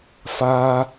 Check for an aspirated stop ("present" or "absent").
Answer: absent